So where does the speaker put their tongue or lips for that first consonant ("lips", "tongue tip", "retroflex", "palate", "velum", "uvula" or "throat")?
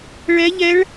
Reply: retroflex